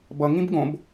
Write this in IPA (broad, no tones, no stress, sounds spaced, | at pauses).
b ʌ ŋ ĩ b ɡ õ b